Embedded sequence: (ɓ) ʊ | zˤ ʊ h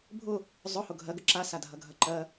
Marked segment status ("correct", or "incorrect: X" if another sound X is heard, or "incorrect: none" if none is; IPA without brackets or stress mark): incorrect: bʱ